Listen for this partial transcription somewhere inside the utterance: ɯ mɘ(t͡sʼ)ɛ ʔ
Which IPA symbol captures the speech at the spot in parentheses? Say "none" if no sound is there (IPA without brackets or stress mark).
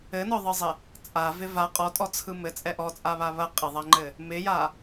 t͡sʼ